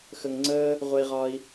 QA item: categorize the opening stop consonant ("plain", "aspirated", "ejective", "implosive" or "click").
click